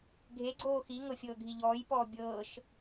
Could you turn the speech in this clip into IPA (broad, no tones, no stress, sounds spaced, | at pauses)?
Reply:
ɡʱ e ɡ͡ǀ oː x i ŋ ɤ fʲ ɤː ɡʱ i ʎ ɔː j p ɔː bʲ ɤː ʃ